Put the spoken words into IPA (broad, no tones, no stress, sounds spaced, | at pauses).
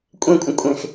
kʷʼ ẽ kʷʼ ə̃ kʷʼ ẽ x